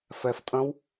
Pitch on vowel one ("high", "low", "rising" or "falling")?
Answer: low